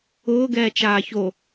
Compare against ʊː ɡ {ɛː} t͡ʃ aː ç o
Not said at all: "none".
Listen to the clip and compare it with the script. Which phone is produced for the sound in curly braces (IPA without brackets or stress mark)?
ɛː